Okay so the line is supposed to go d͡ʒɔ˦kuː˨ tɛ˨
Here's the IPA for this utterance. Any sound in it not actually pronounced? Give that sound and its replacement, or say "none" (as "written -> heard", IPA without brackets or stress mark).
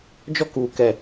t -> k